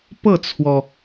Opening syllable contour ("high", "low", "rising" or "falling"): falling